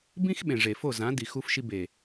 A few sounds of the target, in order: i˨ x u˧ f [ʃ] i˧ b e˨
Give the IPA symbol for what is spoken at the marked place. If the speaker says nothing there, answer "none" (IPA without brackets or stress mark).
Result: ʃ